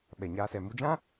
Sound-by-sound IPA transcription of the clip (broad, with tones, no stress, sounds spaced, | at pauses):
ɓ ɛ˨ ɲ aː˧ s ɛ˨ m u˧ d͡ʒ ã˦